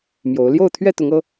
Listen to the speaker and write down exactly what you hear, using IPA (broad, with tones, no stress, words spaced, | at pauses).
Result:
mjo˨˦ʊ̯ ljo˥˨ʊ̯t̪ʰɥɛ˥˨t̪ʊ˨˦ŋɤ˨˦